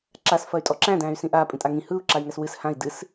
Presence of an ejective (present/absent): present